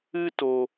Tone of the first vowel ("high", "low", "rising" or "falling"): high